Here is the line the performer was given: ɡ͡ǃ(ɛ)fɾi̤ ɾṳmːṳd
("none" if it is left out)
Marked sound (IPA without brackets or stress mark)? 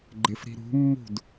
ɪ